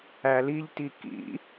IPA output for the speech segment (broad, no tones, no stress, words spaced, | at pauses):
æliʎti kḭ